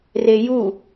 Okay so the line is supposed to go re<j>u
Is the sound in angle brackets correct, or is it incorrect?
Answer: correct